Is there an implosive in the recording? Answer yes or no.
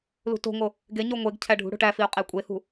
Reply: no